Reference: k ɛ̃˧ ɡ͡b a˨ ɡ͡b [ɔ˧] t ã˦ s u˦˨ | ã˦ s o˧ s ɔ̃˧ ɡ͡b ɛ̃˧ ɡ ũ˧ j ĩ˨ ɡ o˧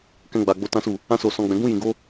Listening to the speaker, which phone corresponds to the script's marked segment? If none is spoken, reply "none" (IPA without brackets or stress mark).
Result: o˧